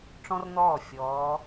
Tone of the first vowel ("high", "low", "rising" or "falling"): high